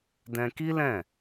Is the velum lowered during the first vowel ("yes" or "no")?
yes